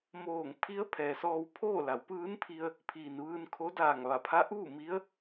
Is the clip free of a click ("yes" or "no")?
yes